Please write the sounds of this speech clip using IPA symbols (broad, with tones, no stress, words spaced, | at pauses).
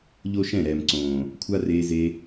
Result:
ʎo˦ʃɛ̃˦˨ɾɛː˨m ǀõː˨ | kʷʰa˦reː˧ ze˧